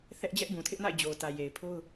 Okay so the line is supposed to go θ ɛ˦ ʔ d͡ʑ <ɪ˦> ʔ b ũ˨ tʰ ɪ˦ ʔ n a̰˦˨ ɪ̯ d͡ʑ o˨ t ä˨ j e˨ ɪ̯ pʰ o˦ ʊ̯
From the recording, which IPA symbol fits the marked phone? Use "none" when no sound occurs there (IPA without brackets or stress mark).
ɛ˦